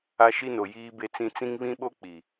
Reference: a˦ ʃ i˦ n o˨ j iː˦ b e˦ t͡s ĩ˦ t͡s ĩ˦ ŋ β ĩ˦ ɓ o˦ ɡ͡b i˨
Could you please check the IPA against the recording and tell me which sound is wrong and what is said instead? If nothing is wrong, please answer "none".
ɡ͡b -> k͡p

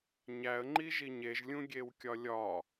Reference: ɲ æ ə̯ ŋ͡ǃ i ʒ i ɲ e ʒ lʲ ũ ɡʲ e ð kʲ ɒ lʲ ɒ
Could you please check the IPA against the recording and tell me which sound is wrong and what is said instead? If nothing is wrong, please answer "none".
ð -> w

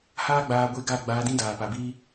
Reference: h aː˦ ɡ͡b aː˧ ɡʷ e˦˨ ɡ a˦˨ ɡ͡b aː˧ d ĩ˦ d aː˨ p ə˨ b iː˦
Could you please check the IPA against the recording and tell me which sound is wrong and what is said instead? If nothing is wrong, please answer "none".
ə˨ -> a˨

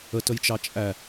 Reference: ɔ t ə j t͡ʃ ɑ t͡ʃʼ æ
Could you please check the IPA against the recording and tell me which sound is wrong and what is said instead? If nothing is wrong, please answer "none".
ɔ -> ə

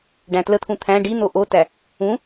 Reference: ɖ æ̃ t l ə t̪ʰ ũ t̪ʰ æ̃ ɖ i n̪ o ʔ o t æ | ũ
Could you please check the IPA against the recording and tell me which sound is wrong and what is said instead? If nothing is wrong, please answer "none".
none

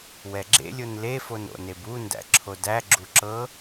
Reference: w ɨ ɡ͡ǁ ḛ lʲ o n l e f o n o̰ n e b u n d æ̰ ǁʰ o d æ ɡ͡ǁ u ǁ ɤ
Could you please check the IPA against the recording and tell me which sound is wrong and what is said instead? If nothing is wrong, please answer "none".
ɨ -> ɛ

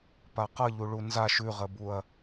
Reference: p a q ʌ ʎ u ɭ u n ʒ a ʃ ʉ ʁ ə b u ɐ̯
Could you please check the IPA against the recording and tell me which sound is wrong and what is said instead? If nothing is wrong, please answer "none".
ʒ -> z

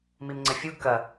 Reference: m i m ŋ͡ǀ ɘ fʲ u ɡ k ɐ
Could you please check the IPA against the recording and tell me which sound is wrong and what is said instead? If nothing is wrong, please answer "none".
none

